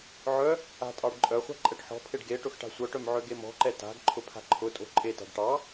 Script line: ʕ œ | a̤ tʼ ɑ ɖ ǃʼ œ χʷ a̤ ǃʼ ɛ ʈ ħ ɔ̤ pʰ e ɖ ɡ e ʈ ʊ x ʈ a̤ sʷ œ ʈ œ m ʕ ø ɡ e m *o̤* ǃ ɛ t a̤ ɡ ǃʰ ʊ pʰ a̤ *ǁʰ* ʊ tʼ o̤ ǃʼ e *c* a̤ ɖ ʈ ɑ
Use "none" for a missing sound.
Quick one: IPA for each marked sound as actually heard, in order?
ɔ̤, ǃʰ, t

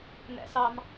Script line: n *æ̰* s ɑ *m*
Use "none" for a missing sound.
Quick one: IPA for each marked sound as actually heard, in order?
æ̰, m

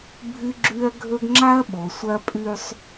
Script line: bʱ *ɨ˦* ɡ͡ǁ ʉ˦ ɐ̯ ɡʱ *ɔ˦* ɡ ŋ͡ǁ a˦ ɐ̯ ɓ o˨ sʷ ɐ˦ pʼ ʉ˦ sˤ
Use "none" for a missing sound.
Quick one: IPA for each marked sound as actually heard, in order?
ɨ˦, ɵ˦

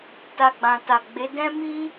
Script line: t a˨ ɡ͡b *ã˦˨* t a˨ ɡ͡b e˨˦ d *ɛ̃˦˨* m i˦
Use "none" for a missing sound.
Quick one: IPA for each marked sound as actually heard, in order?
ã˨, ɛ̃˦

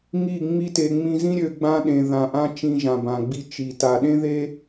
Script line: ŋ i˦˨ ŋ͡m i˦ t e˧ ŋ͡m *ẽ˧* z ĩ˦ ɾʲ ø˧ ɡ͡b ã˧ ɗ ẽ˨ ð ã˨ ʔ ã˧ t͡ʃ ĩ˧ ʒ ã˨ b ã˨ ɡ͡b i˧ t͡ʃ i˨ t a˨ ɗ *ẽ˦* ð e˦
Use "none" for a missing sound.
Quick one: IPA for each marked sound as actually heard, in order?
ĩ˧, ẽ˦

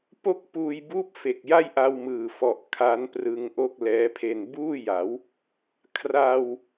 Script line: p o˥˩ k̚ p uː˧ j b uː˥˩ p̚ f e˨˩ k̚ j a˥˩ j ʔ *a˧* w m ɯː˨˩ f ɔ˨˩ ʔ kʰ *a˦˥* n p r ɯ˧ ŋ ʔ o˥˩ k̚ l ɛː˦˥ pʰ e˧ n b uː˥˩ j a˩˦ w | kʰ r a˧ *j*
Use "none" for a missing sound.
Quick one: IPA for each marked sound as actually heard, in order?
a˧, a˦˥, w

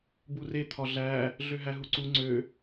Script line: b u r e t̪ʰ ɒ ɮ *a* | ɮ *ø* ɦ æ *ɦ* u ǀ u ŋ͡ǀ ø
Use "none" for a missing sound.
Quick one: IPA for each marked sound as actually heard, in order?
æ, ø, ɦ

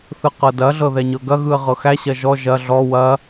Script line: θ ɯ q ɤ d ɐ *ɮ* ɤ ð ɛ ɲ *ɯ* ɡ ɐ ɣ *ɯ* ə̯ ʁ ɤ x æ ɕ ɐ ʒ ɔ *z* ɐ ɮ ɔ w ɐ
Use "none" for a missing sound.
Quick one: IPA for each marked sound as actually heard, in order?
ɮ, ɤ, ɯ, ʒ

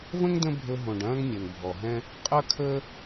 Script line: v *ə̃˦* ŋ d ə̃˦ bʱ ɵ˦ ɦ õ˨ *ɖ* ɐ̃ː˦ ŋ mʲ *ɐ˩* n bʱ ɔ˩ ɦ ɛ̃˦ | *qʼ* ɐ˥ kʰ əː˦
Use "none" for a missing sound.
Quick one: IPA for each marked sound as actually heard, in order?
ə̃˥, ɖ, ɐ˩, qʼ

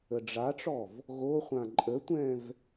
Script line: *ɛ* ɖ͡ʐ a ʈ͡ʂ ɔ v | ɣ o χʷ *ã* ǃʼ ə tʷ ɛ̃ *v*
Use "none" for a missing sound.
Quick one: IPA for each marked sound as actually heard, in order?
ə, ã, v

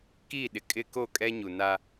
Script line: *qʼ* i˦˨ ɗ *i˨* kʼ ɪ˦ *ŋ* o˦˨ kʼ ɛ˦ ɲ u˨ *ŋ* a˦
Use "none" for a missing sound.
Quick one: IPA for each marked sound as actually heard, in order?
k, ɪ˨, k, n

